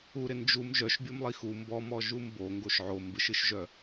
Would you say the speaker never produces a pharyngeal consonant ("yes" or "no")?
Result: no